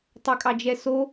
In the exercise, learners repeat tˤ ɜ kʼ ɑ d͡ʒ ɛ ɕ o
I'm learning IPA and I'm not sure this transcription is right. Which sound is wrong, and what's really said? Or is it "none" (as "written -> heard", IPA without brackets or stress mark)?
ɕ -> s